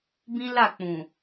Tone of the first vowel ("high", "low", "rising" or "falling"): high